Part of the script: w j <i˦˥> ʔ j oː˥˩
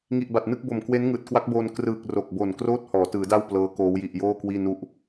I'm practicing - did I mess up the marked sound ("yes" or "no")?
yes